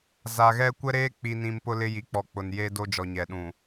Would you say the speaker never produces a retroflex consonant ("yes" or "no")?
yes